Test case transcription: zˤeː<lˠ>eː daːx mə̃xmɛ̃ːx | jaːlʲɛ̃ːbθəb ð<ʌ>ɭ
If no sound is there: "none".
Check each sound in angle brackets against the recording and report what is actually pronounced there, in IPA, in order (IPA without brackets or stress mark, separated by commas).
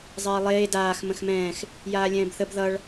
lˠ, ʌ